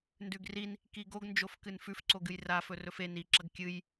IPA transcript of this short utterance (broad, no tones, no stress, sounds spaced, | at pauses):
n d ʉ ɡ r i n | k i ɡ o ɡ n d͡ʒ o f k ɨ n f ʉ f ǀ o ɡ ɨ j r a f ɵ r ɵ f e n i ǁ ɐ ɡ kʲ ɨ j